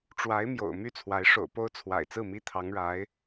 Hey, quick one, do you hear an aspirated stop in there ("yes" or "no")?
yes